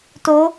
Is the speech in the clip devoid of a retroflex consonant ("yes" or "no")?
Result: yes